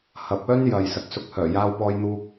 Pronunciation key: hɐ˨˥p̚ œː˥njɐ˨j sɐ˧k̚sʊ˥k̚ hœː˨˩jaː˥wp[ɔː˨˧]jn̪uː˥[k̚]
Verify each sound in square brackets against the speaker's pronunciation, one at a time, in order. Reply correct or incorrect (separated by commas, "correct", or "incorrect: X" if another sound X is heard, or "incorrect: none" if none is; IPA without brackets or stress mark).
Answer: incorrect: ɔː˥, correct